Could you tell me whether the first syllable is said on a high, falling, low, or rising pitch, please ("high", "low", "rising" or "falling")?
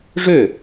falling